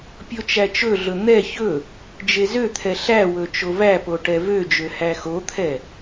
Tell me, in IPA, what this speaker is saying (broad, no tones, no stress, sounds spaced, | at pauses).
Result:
pʲ o t͡ʃ æ t͡ʃ ɵ ɮ ɵ n̪ ɛ ç ɵ | d͡ʒ e z ø t̪ʰ ɛ ɬ æ w ɵ t͡ʃ o v æ p o ʈ ɛ v ø d͡ʒ ø h æ x o t̪ʰ ɛ